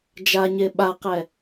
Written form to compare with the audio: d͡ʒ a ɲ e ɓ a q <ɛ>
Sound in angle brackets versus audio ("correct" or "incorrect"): correct